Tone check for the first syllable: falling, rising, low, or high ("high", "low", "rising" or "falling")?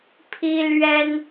high